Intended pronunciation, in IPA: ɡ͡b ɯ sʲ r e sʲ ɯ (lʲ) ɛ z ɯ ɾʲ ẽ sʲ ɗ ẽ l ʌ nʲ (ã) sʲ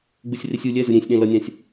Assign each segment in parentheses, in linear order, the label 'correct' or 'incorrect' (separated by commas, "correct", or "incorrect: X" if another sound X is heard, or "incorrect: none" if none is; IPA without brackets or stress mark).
correct, correct